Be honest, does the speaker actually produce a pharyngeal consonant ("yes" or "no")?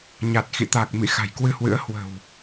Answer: no